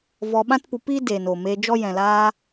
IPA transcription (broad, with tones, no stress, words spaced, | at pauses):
vɔ˧ɓã˦tpu˧piː˦ deː˨n oː˨meː˧d͡ʒɔ˦ jɛ̃˨laː˧